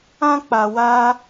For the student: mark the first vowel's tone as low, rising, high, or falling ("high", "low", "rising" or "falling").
high